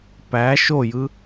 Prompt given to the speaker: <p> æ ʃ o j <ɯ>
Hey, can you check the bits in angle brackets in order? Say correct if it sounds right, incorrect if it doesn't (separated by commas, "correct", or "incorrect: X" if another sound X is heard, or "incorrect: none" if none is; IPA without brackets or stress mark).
correct, correct